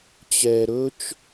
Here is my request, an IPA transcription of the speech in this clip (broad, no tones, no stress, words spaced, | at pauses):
t͡ɕɛ ɾɵt͡ʃ